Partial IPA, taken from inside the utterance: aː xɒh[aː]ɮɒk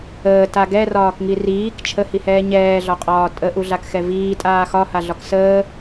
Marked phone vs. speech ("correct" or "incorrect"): incorrect